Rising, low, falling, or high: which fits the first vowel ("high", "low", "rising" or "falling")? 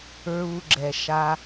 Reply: low